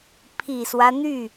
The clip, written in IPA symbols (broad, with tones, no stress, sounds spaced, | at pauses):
pʰ i˨˩ s w ä˦ n̪ y˥˩